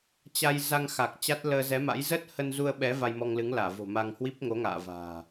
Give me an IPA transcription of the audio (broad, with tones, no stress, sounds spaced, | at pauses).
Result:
t͡ɕ a˧ j z a˧ ŋ x a˨˩ k̚ t͡ɕ a˦˥ t̚ l əː˧ z ɛ˨˦ m a̰˧˥ j z əː˦˥ t̚ h ə˧ n z u˧ ə̯ ɓ ɛ˨˦ v a˧ j m ɔ˧ ŋ l ɨ˨˦ ŋ l aː˧˩ v o̤˨˩ m a˧ ŋ h w i˦˥ p̚ ŋ o˨˦ ŋ a̰ː˧˨ v a̤ː˨˩